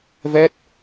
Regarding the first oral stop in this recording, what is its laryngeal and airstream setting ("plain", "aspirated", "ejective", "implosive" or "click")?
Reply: plain